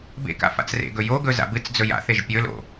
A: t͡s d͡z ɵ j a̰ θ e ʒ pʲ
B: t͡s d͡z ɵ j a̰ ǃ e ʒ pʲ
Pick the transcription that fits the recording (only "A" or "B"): A